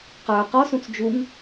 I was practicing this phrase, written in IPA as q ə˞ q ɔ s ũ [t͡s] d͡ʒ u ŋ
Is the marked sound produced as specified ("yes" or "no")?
yes